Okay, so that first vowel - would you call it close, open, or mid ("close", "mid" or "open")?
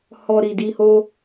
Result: mid